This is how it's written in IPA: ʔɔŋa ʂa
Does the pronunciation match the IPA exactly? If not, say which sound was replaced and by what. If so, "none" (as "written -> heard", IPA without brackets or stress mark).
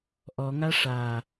none